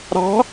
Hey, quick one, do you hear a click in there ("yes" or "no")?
no